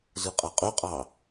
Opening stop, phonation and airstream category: ejective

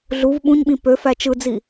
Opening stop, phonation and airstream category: implosive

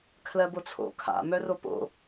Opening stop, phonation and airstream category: aspirated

